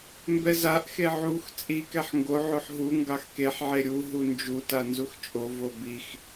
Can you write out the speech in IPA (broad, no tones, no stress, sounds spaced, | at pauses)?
m b ɛ z a ʔ x e ʕ u x t͡sʼ i k ɛ ħ ŋ ɡ o ʕ o ħ ɦ u ŋ ɡ ɑ x k e ħ ʕ e ɾʲ u ɦ u n d͡ʒ u t a n z u x t͡ʃʼ o v o b i x